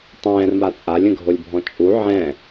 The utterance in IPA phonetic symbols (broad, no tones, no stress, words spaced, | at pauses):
tˤɛ̃ːrma t͡sʼalʲə̃ɡʱolʲbʱɔ̃ t͡ʃʼu ʕɛ̃